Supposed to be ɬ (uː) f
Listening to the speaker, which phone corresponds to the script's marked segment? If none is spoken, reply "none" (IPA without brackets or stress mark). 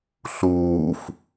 uː